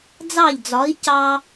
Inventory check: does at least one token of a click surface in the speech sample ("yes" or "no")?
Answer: no